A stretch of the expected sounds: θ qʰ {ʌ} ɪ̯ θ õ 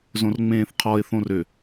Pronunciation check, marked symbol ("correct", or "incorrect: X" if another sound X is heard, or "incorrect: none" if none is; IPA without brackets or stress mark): incorrect: ɔ